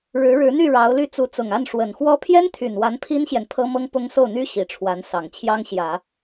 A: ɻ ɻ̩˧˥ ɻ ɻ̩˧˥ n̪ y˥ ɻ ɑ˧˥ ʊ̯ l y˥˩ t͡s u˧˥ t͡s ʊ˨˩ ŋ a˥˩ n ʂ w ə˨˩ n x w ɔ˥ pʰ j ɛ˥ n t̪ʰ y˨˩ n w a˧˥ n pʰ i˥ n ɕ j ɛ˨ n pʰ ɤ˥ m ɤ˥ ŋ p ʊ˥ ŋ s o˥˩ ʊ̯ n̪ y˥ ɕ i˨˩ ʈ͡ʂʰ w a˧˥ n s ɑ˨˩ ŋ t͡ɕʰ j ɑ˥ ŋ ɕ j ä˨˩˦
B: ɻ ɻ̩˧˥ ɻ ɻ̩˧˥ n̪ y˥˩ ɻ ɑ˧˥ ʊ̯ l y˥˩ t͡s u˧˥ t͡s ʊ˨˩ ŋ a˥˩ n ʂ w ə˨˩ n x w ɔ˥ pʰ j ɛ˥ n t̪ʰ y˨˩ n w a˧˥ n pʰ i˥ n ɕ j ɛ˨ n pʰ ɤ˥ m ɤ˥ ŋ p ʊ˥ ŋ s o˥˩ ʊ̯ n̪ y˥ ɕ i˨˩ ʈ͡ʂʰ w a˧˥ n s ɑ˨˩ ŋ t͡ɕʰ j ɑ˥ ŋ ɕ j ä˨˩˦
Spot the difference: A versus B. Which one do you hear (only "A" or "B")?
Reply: B